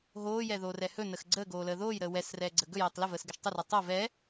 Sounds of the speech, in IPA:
ɦoːjɛðoːrɛ hɵnəx ɡ͡ǀəːɡoːləː ðoːjɾəː wɛsrɛːɡ͡ǀə ɡɵjɛːtˤ ləvəːsɡəʃ tˤərɛ tˤo vɛ

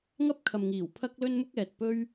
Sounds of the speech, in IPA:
ŋɐ˥p̚kʰɐ˨mŋiː˨˩w pʰɐ˥k̚lɵ˥n mʊ˥k̚ɛː˨t̚pɵ˥ɥ

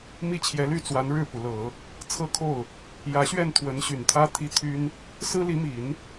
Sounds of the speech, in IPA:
mi˥˩t͡ɕʰjɛ˧˥ly˥˩t͡swa˧˥n ɻɻ̩˥˩pu˩lɤ˨˩˦ | t͡sʰɤ˥˧kʰo˥˩ʊ̯ | jä˧˥ɕɥɛ˥˩n t̪ʰwə˧˥nɕy˨˩nt̪ʰä˥ t̪ʰi˥ t̪ʰy˥n | sɹ̩˥li˧˥mi˨˩˦n

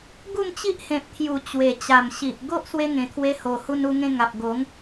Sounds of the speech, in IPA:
ɡu˥˧mt͡ɕi˦ʔhẽ˨p̚t̪ʰju˨˩ t͡ɕwe˨˩ t͡ɕa˨˩mɕi˨ʔ ɡo˦ʔswe˧ ŋẽ˨˩t̪ʰwe˧ho˨˩hu˧n u˧ŋẽ˧ŋa˨p̚ ɡo˨˦ŋ

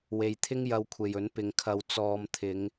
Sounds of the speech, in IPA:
we˧jt̪ʰɪ˥ŋ jɐ˧wkʷʰe˨jɵ˨˥n pɪ˨ŋkʰɐ˨w t͡sɔː˨˧m t̪ʰɪ˨˧ŋ

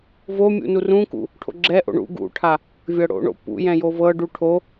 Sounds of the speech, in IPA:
vomʲṵ nurũkṵ | ʈʰo̰ɡ͡ǁɛʔo̰ ɳṵ ɡṵʈʰa | vʲɤɽo̰ɳo̰ pṵjɛ̃ jovɤɖu ʈʰo

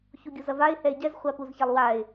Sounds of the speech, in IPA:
çuɡʲuzɐvaɪ̯ hɛɪ̯ɟɛz χʷapuzçalˠwaɪ̯

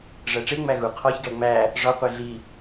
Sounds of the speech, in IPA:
ʐæʈ͡ʂe ŋ͡mæɣu qʰɒçɡæ ŋ͡mæ | ʐɒ qʷeɮi

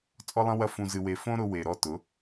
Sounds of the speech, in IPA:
t͡sʼɔ˦lˠɐ̃˦wɐ˦ fũ˧zɨ˧we˧ fõ˦ ɾʊ˧we˨ ɾɔ˧tʊ˨˦

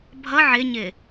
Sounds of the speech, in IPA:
bʱʌ ʕɪɲɪ

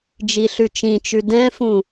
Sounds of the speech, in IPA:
d͡ʒiɬʉt͡ʃĩt͡ʃʉ dɛ̃fũ

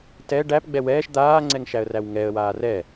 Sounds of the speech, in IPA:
tɛ ɖæpɡ͡bɛ wɛːʃ d̪aːŋ͡ǀɛŋʃæə̯ræw ŋɛə̯waː rɛ

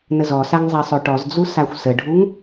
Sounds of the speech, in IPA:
nəzɔsaŋ zˤɛsˤøʈɔzd͡zu saxʷsəɖʱuŋ

